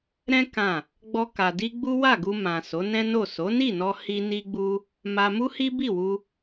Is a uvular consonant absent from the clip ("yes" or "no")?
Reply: yes